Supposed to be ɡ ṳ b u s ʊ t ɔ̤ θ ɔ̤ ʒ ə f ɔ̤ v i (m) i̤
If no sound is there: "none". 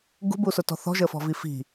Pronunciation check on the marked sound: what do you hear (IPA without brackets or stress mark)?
f